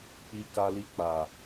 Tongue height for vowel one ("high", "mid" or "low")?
high